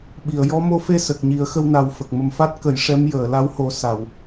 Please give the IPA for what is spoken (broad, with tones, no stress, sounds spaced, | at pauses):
ɓ i˨˩˨ ə̯ j ɔ˧˥ m o˧ f e˧ s ə˨˩ k̚ ɲ i˨˩˦ ə̯ x ə˧ w n a˨˩ w f ə˨˩ k̚ m ə˨˩ m f a˦˥ t̚ k ə˨˩˦ j ʂ ɛ˧˥ m j əː˨˩˨ l a˧˥ w h o˨˩˦ s a˨˩˨ w